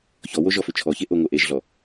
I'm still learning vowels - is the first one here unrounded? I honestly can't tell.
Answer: no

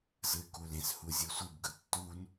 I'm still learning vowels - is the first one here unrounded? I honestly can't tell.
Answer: yes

